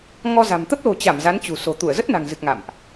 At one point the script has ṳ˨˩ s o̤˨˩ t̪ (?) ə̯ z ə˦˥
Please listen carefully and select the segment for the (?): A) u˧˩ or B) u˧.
A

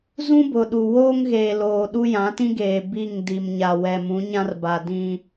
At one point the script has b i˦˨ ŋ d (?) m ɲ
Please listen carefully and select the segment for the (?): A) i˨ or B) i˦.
A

